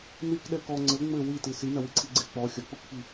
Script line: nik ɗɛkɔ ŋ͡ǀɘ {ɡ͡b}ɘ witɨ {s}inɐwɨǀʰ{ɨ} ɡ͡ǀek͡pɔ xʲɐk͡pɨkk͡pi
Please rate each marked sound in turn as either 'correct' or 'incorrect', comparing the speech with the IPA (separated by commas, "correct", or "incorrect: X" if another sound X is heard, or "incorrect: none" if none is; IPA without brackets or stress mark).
incorrect: ŋ͡m, correct, incorrect: i